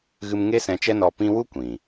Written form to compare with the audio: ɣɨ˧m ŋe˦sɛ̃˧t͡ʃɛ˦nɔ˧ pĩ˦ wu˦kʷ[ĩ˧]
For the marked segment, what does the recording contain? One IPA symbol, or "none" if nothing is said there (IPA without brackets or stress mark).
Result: ĩ˨